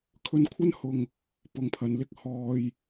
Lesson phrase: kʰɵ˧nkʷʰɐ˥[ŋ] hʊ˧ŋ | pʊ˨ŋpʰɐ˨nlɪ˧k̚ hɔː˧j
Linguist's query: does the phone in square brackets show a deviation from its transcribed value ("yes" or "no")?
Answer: yes